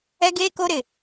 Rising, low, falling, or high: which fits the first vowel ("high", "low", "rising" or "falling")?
high